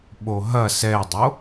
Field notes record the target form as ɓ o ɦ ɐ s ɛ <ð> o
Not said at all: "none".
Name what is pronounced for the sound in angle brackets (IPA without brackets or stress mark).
dˤ